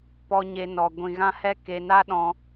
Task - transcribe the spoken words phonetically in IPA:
p ɔ˧ ɲ e˧ n ɔ˧ ɡʷ ĩ˧ ɣ ã˦ h ɛ˦ k e˧ n a˦ ɗ ɔ̃˧

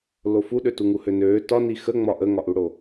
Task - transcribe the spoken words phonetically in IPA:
l o f u ɗ ø t u ŋ u h ø n øː t ɒ n i x ə ŋ͡m ɒ ʔ ə ŋ ɒ ʔ u ɽ o

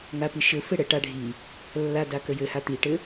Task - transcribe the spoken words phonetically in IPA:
ŋ a p i ʃ ɘ f ɘ ɽ ə ʈ a ɖʱ i | lː a d a k ə j ɘ h a t̪ i ʈ ɘ

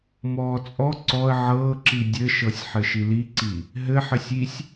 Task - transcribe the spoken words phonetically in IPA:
m ɔː t͡sʼ ɔ ǀ ɔ ə̯ ʕ ɤː ǁ i dʲ ɘ ʃ ɤ sʲ ħ ɘ ʃ i l i ǀ i | ɦ ɘ ħ ɘ sʲ i sʲ

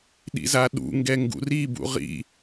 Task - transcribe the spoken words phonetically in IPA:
ɗ ḭ z a ɗ ṵ ŋ ɡ ɛ ŋ ɡ ṵ r i b ṵ ʁ ḭ

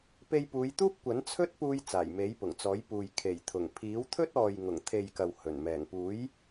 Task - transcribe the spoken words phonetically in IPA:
p e˧ j p uː˨˧ j t̪ uː˥ p̚ kʷ ɐ˨˥ n t͡sʰ ɵ˥ t̚ p uː˧ j t͡s aː˨˩ j m e˨˥ j p ʊ˨˩ ŋ t͡s ɔː˨˥ j p uː˨ j kʰ e˨˩ j t̪ʰ ʊ˨˩ ŋ pʰ iː˨˥ w t̪ʰ ɵ˥ t̚ ɔː˨ j ŋ ʊ˨˩ ŋ t̪ʰ e˨ j k ɐ˨ w h ɵ˨˩ n m ɛː˨˩ ŋ p uː˨˥ j

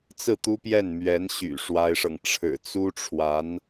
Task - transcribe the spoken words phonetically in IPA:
t͡s ɹ̩˥˩ t̪ u˥ p j ɛ˥˩ n m ɥ ɛ˧˥ n ɕ y̰˨˩ ʂ w a˥ ɪ̯ ʂ ɤ˨ ŋ ʈ͡ʂʰ ɻ̩˨˩ t͡s u˥ ʈ͡ʂʰ w a˧˥ n

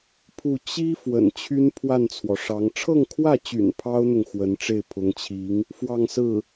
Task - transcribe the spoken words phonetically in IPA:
pʰ u˥˩ t͡ɕ i˥ f w ə̰˨˩ n t͡ɕʰ y˥ n pʰ w a˥˩ n t͡sʰ w ɔ˩ ʂ ɑ˧˥ ŋ ʈ͡ʂʰ ɤ˥˧ ŋ kʰ w ä˥˩ t͡ɕ y̰˨˩ n pʰ ɑ˥ ʊ̯ n̪ ʊ˨ ŋ x w ə˧˥ n ʈ͡ʂ e˥˩ ɪ̯ pʰ ʊ˧˥ ŋ t͡ɕʰ i˧˥ ŋ | f w ɑ˥˧ ŋ s ɹ̩˥˩

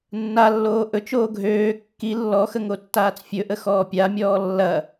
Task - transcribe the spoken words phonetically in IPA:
nː a lː oː ʔ ɵ t͡ʃ oː ɡʱ øː kː i lː ɔ x ə ŋ o tː aː t͡s fʲ ɵ ʔ ə x ɔː pʲ a mʲ ɔː lː ɐ

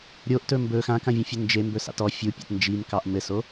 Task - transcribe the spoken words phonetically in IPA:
ɾʲ o ʔ t ɵ m b ɵ x ã k ã vʲ õ fʲ ɵ n d͡ʒ e m b ɵ s ɑ̰ t ɔ fʲ u pʲ a̰ t n d͡ʒ i m k ɑ ʔ m ɘ s o

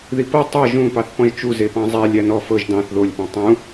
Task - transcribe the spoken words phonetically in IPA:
ð i p ɤ tˤ ɤ ʒ ũ p ɑ θ p ɔ̃ ʒ t͡ʃ u z e p ɑ̃ zˤ æ lʲ æ n ɔ f ɤ ʒ d ɑ̃ θ ð o lʲ p ɔ̃ tˤ ũ

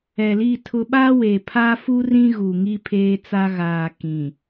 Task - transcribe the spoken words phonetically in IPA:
ɛ˨ l i˦˨ tʰ ʊ˦ ɓ a˦ w e˨ pʰ a˦ f u˦ r ĩ˦ ɣ u˨ ŋ i˦ pʰ eː˦ t͡s a˦ ɣ aː˨ k ĩ˨

